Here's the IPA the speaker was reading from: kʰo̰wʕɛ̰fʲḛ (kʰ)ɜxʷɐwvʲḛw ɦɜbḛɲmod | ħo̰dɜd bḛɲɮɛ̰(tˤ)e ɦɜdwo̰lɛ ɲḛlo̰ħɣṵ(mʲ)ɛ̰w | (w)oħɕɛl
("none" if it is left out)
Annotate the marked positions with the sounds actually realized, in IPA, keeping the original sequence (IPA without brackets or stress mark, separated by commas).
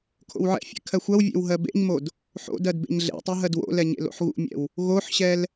kʰ, tˤ, mʲ, ɣ